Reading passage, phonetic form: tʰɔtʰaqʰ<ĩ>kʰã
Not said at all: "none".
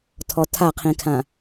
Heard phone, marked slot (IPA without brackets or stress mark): ĩ